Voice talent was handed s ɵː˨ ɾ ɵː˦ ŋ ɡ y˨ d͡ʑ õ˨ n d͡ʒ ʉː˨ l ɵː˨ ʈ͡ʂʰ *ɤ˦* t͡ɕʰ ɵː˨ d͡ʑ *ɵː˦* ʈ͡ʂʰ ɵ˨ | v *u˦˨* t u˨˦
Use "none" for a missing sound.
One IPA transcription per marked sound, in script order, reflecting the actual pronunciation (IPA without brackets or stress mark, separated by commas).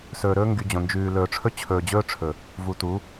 ɵ˦, ɵː˦, u˨